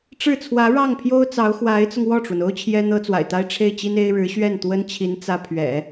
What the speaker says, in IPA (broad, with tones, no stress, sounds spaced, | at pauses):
ʈ͡ʂ ɻ̩˥˩ t͡sʰ w ä˧˥ ɻ ɑ˥˩ ŋ pʰ j o˥ ʊ̯ t͡s ɑ˧˥ ʊ̯ x w a˧˥ ɪ̯ t͡s ʊ˧ ŋ w ɔ˥˩ ʈ͡ʂ w ə˩ n o˥ ʊ̯ t͡ɕʰ j ɛ˥ n̪ ɤ˥ t͡s w a̰˨˩ ɪ̯ t̪ a˥ ɪ̯ ʈ͡ʂʰ e˥˩ ɪ̯ t͡ɕ i˥ n e˥ ɪ̯ ɻ ɻ̩˧˥ ɕ ɥ ɛ˥˩ n t̪ w ə˥ n t͡ɕʰ i˧˥ n t͡s ä˥ pʰ ɥ ɛ̰˨˩˦